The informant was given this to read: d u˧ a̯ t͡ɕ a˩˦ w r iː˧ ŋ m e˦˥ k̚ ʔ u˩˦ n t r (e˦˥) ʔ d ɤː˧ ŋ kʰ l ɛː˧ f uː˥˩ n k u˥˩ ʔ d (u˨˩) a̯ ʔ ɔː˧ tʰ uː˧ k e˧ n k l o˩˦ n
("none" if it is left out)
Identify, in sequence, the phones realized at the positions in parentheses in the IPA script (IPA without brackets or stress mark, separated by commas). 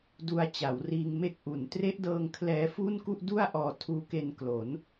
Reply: e˦˥, u˥˩